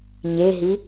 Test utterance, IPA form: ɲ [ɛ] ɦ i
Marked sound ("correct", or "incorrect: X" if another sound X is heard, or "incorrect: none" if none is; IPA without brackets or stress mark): incorrect: e